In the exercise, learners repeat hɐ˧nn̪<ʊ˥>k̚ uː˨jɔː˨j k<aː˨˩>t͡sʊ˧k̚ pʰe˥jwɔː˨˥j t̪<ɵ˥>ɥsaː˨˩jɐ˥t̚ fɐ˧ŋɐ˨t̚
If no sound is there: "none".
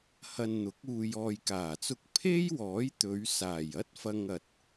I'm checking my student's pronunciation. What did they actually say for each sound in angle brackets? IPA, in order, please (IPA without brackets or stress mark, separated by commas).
ʊ˨˥, aː˨˩, ɵ˨˧